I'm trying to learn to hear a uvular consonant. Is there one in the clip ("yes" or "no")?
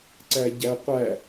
yes